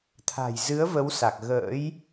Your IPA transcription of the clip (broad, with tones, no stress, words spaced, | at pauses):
t̪ʰa̤˨˩jzɨ˨˦ə̯ və˨˦wsa˨˩k̚ ɣə̰ː˧˥j